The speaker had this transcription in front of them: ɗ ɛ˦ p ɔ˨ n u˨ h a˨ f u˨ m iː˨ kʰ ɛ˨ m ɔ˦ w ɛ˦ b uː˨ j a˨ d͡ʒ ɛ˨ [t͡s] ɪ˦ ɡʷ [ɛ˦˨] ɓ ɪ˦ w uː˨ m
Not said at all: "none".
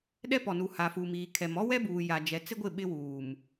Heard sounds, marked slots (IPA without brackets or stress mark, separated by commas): t͡s, ɪ˦˨